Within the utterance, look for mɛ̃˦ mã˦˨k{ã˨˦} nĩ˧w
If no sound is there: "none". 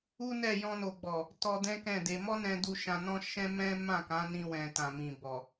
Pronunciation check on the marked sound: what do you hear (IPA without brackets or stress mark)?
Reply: ã˨˦